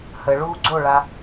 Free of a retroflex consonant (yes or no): no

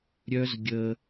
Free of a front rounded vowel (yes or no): no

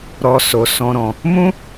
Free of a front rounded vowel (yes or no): yes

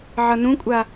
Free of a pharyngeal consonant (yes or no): no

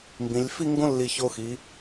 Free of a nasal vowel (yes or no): no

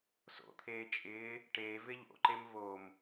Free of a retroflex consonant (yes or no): no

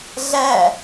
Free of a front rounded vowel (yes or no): yes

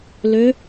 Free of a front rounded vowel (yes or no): no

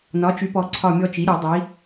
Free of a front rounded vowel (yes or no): no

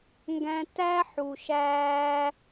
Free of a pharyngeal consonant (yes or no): no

